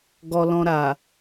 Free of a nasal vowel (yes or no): no